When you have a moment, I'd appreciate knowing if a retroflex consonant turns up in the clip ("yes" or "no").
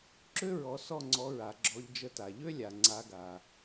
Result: no